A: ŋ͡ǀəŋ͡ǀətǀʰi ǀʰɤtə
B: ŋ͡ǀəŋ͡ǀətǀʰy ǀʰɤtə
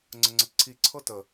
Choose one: A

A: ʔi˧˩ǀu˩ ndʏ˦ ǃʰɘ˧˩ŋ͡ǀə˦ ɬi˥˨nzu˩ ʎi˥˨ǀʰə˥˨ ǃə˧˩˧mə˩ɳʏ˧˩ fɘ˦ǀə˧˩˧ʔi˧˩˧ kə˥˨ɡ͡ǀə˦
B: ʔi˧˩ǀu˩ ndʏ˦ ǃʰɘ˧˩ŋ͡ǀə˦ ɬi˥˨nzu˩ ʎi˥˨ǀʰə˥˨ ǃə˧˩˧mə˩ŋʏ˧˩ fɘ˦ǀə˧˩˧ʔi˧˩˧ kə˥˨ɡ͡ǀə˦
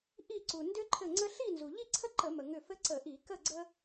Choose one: B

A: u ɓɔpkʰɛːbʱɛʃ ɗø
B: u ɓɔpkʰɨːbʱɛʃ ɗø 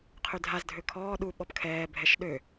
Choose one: A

